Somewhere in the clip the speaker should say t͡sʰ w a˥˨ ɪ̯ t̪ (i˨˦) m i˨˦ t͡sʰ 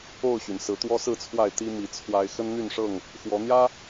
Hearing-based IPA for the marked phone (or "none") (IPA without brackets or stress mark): i˦